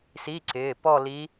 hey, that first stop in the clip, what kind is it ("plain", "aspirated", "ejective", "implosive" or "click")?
click